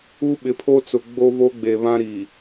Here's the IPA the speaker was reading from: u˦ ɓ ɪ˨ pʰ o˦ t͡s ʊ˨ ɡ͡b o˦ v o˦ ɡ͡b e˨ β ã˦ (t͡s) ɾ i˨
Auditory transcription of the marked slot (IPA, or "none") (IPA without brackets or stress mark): none